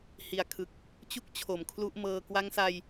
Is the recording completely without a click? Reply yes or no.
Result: yes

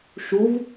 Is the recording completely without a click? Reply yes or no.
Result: yes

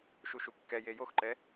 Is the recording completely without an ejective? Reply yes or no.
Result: yes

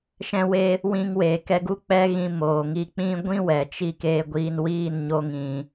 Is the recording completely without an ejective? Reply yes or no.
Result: yes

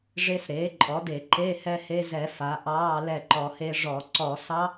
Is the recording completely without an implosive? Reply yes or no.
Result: yes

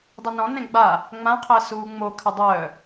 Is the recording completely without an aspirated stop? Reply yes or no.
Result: no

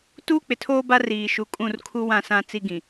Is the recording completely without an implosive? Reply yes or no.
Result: yes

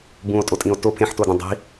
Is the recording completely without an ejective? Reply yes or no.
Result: no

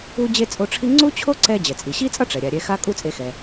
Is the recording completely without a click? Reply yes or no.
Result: no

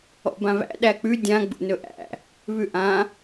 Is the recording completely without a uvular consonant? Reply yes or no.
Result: yes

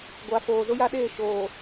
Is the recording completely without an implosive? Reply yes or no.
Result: no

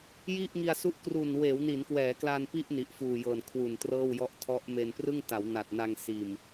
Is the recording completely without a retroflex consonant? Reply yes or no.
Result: yes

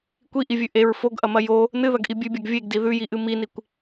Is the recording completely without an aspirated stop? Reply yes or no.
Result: yes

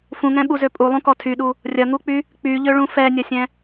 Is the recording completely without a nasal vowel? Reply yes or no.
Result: no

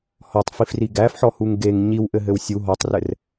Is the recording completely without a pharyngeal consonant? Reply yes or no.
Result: no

